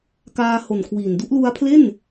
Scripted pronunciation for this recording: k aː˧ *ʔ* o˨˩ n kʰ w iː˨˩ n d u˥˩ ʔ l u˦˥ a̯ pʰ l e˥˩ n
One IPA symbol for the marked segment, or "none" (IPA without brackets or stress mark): h